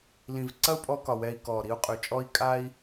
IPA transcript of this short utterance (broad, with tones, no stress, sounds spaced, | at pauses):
l ĩ˨ v ǀ ɐ˦ u̯ pʼ ɔ˧ k ɒ˨ w ɛ˧ i̯ k ɔː˨ ɾ i˧ u̯ qʼ ʉ˨ t͡ʃʼ ɔ˦ i̯ kʼ a˦ i̯